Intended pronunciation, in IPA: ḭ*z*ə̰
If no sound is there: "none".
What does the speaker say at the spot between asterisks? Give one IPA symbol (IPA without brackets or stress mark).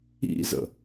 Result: z